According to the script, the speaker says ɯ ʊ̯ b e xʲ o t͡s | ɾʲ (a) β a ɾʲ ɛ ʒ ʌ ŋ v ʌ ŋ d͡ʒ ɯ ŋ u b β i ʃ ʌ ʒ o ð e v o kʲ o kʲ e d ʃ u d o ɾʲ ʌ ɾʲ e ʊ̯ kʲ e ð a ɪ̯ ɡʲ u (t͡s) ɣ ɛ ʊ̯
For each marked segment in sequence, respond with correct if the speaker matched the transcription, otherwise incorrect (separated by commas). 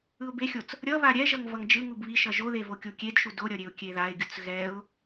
incorrect, correct